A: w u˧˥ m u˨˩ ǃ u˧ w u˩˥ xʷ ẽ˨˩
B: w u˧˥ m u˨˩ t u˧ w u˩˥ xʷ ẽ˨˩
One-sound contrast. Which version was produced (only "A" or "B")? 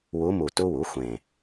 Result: B